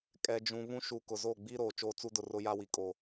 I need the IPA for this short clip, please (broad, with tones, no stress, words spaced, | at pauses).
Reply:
kʼɛ˨d͡ʒũ˨ βũ˦ʃu˨kʊ˨ zo˦˨ɡ͡bi˦ ɾoː˨ t͡ʃoː˦t͡su˦dʊ˦˨rʊ˦ ja˦wi˨kʼo˨